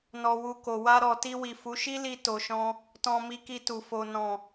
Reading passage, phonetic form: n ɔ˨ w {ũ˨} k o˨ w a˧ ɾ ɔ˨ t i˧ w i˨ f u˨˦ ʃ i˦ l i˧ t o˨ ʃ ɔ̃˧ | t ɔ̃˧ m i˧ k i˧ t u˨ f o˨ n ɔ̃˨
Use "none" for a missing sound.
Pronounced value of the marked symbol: u˨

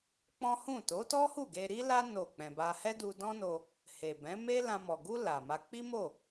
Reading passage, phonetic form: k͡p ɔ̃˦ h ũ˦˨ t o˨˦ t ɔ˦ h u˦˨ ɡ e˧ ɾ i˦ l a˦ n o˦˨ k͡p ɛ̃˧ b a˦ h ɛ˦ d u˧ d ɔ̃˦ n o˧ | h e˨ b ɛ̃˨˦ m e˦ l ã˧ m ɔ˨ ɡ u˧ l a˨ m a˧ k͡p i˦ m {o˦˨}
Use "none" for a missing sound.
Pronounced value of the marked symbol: o˦˨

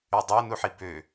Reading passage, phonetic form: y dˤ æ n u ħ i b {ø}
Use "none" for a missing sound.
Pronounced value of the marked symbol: ø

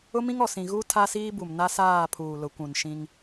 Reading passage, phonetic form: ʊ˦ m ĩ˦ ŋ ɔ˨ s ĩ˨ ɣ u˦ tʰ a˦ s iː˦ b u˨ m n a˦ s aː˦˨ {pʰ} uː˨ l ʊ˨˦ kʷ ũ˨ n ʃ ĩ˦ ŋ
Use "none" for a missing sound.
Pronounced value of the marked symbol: pʰ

